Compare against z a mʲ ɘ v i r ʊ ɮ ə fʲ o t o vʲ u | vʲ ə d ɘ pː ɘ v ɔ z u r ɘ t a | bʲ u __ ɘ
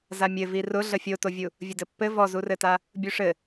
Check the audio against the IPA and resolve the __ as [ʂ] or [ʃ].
ʂ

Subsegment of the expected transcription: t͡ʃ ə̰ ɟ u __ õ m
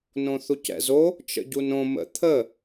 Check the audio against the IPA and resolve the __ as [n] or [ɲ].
n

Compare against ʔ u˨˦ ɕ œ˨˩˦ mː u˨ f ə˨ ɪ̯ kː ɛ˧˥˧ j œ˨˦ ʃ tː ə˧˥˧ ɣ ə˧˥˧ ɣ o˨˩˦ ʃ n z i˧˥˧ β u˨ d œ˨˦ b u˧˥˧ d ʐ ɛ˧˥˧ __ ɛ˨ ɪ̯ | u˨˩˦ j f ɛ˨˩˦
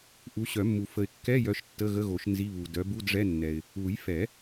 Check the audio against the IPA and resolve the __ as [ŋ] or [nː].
nː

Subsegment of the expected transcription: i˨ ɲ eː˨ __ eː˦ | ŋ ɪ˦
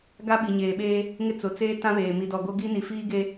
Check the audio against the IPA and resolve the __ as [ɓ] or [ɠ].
ɓ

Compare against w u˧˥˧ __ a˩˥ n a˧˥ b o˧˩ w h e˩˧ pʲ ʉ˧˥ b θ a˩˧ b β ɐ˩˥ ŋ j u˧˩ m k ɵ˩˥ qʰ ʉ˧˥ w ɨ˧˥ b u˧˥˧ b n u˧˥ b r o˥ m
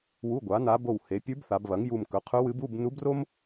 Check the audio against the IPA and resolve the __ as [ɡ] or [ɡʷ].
ɡʷ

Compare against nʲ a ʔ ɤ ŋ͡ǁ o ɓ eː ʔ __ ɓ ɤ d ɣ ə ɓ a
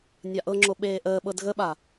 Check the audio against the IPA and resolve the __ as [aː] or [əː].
əː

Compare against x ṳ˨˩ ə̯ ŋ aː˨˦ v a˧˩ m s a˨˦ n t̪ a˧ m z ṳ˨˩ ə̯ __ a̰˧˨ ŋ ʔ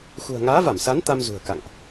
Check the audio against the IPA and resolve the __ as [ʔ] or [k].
k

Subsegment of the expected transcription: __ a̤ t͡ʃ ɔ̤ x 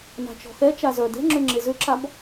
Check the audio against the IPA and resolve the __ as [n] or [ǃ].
n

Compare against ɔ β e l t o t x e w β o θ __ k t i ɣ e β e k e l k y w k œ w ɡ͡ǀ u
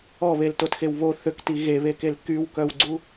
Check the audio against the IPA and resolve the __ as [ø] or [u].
ø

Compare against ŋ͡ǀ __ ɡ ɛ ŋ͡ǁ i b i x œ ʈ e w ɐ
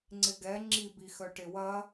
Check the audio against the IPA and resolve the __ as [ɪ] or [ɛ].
ɪ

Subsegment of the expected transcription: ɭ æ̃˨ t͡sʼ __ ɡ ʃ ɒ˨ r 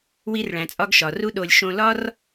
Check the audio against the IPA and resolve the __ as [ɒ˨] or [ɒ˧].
ɒ˧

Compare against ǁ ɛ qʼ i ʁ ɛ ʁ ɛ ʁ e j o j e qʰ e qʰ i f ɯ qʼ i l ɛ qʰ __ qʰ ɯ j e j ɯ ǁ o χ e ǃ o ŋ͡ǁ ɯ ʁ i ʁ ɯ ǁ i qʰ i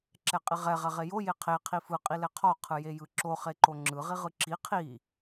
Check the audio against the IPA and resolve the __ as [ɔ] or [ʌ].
ɔ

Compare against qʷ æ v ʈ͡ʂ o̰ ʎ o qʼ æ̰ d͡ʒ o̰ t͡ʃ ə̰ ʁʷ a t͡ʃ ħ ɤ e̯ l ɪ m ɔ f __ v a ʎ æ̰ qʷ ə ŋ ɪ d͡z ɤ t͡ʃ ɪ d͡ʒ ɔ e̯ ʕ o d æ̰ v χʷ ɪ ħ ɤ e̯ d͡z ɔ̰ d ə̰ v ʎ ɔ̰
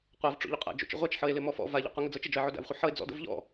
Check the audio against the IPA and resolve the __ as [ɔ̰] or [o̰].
ɔ̰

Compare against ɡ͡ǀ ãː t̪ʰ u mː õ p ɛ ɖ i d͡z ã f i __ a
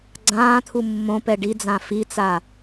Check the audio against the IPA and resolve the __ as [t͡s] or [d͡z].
t͡s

